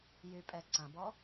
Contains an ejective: yes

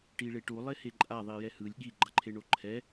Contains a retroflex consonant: yes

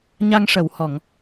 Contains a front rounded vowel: no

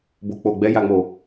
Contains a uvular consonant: no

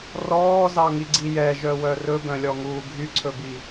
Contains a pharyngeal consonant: no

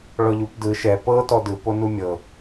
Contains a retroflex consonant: yes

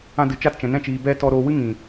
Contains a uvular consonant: no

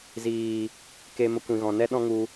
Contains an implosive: yes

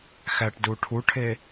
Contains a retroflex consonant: yes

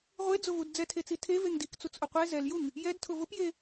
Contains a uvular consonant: yes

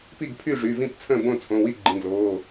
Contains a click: yes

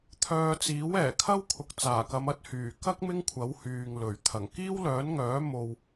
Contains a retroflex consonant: no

